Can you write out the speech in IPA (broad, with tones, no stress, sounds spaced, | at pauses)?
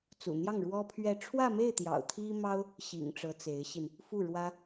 t͡s ṵ˨˩ n̪ j ɑ˥˩ ŋ ɻ w ɔ˥ pʰ ɥ ɛ˥˧ ʈ͡ʂʰ w ä˥˧ m e˥˩ ɪ̯ t̪ j ɑ̰˨˩ ʊ̯ t̪ʰ i˥ m ɑ˥ ʊ̯ | ɕ ḭ˨˩ ŋ ʈ͡ʂ ɤ˧˥ t͡s e˧˥ ɪ̯ ɕ i˧ n | f u˥˩ ɻ w ä˥